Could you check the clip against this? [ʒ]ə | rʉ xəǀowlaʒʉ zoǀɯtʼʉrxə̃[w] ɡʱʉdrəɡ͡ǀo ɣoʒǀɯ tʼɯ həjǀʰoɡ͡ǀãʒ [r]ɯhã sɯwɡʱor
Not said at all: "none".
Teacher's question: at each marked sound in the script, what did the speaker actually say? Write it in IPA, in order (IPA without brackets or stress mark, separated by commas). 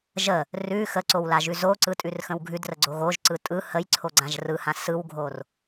ʒ, w, r